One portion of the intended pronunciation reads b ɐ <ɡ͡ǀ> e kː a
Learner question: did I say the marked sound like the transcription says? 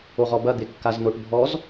no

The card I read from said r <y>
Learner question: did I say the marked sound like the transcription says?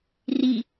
no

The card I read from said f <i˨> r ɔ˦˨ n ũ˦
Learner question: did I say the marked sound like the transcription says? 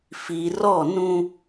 yes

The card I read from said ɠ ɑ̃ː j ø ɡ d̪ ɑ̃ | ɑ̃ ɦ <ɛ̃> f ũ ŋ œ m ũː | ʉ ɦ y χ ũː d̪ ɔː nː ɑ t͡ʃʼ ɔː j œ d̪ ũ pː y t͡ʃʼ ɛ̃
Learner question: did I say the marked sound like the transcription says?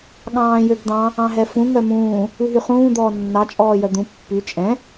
no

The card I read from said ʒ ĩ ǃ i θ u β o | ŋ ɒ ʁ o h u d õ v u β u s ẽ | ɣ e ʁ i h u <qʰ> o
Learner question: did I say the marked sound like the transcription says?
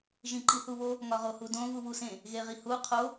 yes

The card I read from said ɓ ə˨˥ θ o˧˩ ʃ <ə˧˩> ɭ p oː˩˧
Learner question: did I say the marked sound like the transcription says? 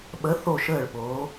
no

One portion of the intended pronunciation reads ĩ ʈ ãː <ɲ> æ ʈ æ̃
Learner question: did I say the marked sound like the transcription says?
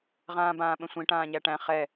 yes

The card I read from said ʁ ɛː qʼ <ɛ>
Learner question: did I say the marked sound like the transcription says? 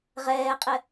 yes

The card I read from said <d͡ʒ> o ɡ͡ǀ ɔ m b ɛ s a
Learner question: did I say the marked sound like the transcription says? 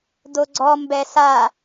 no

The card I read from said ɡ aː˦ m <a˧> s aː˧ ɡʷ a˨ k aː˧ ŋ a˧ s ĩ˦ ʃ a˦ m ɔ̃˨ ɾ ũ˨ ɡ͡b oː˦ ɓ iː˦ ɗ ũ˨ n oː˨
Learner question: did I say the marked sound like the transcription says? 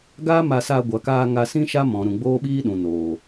yes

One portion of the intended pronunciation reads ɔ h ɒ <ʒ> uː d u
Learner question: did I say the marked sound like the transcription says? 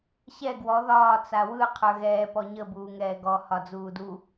no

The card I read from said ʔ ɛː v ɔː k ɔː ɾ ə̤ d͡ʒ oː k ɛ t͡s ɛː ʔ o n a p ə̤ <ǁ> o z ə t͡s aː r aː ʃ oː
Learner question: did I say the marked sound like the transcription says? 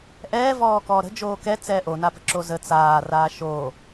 yes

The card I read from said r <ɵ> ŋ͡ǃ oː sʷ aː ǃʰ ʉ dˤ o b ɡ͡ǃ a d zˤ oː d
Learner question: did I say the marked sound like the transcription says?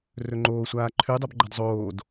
yes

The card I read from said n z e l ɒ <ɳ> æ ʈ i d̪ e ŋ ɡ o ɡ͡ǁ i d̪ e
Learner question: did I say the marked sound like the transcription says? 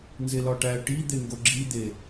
no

